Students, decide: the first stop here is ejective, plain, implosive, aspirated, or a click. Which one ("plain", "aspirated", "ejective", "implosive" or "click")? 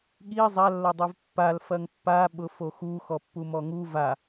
implosive